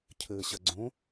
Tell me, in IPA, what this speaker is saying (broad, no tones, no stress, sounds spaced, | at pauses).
cʰ ɘː ɕ ɐ ɡ͡ǀ õ